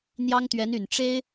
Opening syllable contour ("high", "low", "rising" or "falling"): high